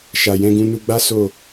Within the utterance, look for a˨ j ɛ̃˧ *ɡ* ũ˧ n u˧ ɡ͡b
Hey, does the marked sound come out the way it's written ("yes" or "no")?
yes